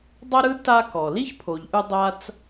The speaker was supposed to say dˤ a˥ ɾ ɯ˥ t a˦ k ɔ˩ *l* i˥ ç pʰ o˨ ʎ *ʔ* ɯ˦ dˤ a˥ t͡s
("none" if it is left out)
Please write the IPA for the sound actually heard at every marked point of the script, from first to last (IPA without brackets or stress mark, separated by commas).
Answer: l, ʔ